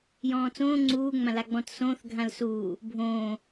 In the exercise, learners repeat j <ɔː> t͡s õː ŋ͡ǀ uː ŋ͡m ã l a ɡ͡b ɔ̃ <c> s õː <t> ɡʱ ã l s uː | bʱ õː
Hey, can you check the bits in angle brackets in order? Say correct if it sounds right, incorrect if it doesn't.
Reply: incorrect: ɔ̃ː, incorrect: t, incorrect: θ

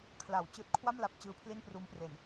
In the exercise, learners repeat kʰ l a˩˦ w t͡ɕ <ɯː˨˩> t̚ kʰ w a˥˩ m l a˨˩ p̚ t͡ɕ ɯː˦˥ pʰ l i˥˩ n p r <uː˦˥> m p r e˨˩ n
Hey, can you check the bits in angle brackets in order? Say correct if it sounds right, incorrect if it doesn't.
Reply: correct, correct

